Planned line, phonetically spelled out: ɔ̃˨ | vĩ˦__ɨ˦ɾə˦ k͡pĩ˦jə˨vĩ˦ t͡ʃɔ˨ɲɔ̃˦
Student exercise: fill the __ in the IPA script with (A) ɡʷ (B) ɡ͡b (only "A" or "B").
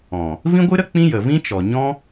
A